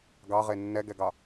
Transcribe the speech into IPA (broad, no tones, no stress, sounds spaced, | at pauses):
ɡ ɑ ʁ e nː ɛ ɡ ɛ ɡ ɑ